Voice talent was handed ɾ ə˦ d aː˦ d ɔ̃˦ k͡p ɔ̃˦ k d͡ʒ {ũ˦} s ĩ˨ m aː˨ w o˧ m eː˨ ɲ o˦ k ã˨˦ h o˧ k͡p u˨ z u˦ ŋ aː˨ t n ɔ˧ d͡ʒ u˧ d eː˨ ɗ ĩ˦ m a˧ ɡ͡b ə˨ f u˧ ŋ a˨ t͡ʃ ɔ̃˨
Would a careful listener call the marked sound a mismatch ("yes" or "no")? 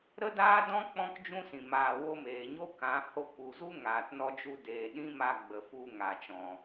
no